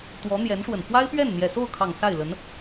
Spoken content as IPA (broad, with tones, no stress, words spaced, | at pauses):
t̪wɔ˧˥n̪jɛ˧˥nʂwə˨˩n fwa˥ɪ̯pɥɛ˥˩n n̪jɛ˨˩so˥˩ʊ̯kʰɑ˨˩ŋ sa˥˩ɪ̯lə˧˥n